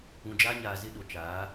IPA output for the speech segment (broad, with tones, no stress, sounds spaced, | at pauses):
ũ˨ d͡ʒ aː˦ ɲ aː˨ z ɪ˦ ɗ o˨ t͡ʃ aː˨˦